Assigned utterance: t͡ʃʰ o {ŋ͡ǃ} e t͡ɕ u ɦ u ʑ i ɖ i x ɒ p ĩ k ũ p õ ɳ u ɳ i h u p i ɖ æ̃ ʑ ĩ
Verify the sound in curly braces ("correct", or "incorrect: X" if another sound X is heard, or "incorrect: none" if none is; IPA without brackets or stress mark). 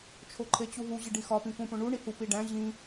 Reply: incorrect: ǃʰ